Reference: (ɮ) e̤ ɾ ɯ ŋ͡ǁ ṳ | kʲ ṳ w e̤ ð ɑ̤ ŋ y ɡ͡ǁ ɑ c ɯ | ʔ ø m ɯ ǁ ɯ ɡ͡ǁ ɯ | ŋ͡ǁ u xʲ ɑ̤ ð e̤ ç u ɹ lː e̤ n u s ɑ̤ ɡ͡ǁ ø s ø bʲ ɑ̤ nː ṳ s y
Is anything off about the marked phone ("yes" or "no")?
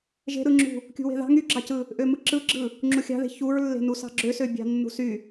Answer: yes